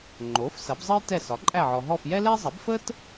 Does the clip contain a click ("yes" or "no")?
yes